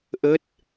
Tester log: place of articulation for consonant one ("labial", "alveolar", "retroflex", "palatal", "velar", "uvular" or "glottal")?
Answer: glottal